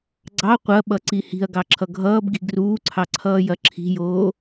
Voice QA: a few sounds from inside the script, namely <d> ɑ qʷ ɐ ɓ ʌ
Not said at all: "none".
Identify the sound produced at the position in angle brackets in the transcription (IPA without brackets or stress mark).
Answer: ɡ͡ǀ